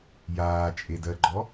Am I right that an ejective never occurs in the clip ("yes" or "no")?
no